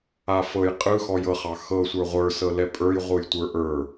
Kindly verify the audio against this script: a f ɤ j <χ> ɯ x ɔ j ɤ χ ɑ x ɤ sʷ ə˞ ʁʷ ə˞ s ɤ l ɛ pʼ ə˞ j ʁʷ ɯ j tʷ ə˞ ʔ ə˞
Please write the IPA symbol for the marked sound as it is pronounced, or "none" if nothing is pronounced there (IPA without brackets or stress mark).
qʼ